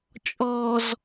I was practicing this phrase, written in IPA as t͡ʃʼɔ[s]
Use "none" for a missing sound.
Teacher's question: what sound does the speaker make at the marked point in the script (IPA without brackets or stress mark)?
z